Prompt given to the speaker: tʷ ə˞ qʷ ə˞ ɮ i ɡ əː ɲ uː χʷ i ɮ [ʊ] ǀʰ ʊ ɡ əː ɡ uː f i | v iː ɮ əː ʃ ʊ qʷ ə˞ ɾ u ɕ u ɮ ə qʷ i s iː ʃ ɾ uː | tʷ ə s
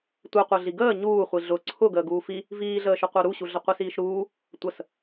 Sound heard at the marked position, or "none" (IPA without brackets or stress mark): ʊ